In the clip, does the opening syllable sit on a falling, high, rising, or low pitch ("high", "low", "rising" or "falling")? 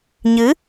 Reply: rising